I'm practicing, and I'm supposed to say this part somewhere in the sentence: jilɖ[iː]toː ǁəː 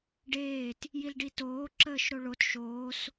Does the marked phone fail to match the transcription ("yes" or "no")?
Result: yes